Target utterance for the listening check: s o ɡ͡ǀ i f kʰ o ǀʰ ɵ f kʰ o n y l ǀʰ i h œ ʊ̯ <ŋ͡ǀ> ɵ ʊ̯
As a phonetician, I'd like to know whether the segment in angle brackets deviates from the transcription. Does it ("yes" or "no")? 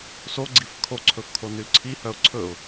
yes